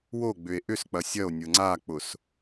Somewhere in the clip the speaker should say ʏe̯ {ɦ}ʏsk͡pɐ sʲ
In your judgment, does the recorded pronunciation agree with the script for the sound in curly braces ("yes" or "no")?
no